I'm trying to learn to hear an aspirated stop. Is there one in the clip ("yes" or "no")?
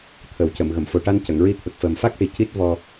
yes